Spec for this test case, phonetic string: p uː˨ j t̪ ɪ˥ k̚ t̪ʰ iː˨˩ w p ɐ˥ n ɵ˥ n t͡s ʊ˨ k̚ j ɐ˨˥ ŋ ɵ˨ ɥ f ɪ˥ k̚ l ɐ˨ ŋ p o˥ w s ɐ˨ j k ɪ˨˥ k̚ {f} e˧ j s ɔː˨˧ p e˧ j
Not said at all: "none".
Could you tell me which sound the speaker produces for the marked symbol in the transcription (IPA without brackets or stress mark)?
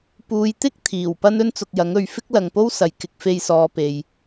f